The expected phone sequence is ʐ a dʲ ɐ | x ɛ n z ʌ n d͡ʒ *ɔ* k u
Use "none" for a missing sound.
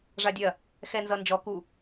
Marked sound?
ɔ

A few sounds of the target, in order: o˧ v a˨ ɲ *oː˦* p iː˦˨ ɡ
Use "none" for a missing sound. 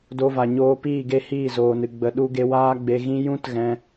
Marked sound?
oː˧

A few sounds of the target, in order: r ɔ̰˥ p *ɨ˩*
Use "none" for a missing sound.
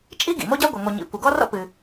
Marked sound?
ɨ˩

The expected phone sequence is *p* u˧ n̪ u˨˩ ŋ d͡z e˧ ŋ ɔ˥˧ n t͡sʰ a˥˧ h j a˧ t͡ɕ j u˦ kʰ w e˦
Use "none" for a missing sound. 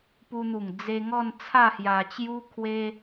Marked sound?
p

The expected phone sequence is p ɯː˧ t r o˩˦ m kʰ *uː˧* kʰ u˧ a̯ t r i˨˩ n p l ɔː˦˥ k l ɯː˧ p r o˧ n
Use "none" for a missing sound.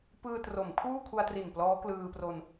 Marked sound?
uː˥˩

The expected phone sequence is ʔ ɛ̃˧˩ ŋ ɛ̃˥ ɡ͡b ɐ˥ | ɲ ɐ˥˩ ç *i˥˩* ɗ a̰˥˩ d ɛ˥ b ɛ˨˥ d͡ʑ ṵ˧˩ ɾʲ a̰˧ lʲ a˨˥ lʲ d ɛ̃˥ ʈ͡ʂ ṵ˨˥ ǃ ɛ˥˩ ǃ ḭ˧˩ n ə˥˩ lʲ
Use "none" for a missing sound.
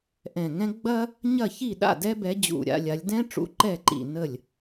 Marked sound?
i˥˩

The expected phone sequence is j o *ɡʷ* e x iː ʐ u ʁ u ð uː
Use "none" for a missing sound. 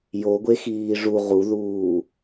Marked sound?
ɡʷ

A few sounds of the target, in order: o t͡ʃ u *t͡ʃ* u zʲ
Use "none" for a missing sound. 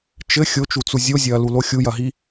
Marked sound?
t͡s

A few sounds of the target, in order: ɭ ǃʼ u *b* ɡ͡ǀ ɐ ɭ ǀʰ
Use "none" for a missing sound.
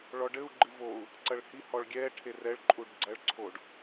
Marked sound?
ɖ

